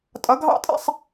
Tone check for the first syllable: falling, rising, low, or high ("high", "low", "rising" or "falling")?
rising